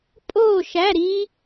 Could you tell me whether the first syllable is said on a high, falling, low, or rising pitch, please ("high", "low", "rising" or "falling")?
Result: falling